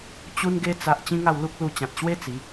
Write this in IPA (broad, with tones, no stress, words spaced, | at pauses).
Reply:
t͡ɕu˦nɡe˦ t͡sa˦ʔ t͡ɕĩ˦ŋa˥˧w lu˦k̚lu˧t͡ɕã˨t̚ ɕwe˦ t͡si˨˦